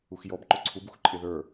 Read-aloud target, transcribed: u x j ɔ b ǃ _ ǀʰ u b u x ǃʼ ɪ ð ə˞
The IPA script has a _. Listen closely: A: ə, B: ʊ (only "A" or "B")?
B